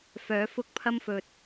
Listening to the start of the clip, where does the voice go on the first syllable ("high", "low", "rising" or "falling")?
rising